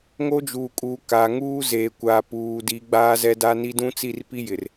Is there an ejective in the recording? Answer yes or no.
yes